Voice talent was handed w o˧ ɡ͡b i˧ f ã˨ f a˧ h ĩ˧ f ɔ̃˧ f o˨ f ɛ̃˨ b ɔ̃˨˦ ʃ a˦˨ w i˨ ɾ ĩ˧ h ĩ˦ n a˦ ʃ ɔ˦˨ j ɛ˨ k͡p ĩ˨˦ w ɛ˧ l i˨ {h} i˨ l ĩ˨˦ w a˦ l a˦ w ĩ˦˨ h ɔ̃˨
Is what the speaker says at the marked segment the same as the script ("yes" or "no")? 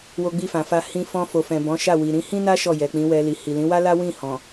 yes